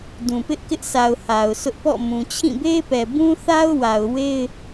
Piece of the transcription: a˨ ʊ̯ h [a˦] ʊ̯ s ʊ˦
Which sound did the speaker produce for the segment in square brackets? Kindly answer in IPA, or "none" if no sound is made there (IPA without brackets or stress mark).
a˨